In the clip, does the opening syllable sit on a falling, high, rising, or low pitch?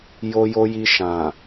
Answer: low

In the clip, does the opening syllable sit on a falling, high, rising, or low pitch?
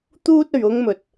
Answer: high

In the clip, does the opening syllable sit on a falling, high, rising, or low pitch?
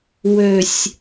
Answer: low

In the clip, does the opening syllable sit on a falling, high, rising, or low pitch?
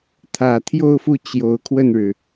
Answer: low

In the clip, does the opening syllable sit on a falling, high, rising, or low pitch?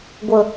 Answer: low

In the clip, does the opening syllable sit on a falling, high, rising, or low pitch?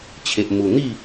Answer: low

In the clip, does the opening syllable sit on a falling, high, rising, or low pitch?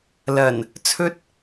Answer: low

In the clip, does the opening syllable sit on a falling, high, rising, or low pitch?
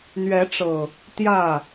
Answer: rising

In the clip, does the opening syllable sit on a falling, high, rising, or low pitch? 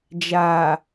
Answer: low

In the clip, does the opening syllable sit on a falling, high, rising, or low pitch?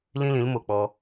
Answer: high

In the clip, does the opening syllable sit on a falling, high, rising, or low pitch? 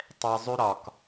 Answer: low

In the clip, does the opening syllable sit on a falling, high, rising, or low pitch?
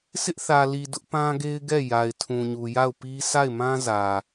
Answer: high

